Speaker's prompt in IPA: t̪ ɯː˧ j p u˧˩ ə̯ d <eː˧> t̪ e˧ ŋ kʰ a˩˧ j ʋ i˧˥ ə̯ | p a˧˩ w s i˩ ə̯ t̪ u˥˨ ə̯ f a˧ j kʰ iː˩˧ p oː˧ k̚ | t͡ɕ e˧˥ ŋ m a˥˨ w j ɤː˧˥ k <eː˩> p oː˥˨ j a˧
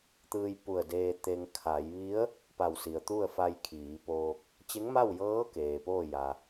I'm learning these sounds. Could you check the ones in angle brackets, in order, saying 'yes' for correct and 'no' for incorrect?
yes, yes

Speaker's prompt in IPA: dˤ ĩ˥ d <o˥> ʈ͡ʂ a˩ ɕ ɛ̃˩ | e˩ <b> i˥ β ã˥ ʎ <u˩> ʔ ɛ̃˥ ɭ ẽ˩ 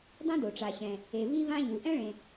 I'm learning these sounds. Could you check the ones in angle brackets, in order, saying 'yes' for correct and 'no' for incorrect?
no, no, yes

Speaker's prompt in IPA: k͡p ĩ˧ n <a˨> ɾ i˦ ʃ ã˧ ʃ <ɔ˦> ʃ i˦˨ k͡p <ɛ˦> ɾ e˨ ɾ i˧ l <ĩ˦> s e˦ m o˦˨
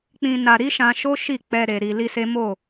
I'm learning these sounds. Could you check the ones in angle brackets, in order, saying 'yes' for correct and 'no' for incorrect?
no, no, no, no

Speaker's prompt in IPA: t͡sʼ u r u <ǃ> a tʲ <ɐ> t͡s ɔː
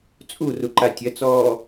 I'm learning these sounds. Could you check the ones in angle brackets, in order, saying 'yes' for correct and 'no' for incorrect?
yes, yes

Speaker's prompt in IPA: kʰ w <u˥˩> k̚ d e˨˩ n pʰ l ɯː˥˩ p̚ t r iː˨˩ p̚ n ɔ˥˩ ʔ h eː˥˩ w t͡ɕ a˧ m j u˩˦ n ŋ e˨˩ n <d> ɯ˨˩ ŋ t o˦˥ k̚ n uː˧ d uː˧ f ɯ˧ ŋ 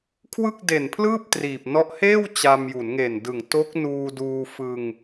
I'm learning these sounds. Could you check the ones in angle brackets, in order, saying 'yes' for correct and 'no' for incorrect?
no, yes

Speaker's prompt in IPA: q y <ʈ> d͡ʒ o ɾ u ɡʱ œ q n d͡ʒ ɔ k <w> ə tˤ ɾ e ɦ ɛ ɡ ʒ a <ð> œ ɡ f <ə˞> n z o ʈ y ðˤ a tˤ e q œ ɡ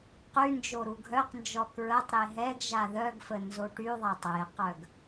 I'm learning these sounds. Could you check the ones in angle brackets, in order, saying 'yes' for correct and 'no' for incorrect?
no, no, yes, no

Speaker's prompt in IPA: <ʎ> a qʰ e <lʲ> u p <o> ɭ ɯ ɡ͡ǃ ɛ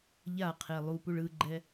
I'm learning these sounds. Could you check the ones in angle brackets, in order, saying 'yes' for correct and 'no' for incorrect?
yes, no, no

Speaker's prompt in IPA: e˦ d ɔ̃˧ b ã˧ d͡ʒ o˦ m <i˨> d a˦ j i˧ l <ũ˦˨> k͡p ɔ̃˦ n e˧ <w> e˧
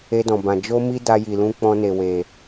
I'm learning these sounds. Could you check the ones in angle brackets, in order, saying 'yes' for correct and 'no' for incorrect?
no, no, yes

